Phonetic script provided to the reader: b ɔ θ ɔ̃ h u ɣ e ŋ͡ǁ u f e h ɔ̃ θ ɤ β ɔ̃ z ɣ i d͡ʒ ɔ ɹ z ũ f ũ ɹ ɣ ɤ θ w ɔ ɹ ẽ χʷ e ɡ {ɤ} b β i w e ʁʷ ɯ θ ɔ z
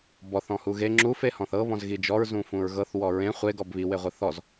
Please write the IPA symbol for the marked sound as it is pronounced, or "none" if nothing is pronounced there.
ɔ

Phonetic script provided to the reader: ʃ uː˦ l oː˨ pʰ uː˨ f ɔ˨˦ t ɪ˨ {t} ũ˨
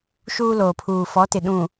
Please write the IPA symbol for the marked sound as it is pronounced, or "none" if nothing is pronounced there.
ɗ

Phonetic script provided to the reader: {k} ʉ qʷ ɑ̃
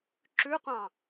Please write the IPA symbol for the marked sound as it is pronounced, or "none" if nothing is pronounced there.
ǁ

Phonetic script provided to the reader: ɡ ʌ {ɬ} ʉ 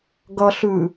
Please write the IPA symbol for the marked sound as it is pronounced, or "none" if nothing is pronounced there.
ɬ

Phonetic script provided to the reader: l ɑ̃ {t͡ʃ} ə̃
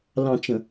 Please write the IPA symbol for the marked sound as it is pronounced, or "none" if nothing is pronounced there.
t͡ʃ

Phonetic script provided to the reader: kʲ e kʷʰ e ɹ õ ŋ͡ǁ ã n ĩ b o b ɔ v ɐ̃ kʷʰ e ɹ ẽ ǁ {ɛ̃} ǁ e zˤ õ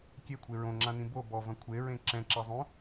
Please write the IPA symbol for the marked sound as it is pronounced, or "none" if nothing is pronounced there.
ɛ̃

